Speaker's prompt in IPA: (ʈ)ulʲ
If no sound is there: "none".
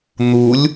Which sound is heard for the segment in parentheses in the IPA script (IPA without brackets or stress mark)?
n̪